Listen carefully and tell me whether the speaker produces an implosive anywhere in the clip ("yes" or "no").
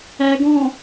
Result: no